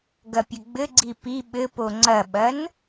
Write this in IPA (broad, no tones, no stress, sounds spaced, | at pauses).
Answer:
ɡ ɐ pʲ ɘ ɡ͡b ɘ ɡ͡ǀ i p i ɓ ɘ p o ŋ͡ǀ ɐ ɓ ɐ n